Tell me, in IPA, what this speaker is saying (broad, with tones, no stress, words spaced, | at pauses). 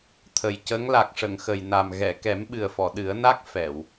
t̪ʰə˨˩jcə˧˥ŋ la˨˩k̚ʂə˨˩˨ŋxə˨˩jna˨˩m ɣɛ˨˩˨kɛ˨˩˦m ɓɨ˨˩ə̯fɔ˨˩˨ɗɨ˨˩˦ə̯na˦˥k̚ fɛ˨˩˨w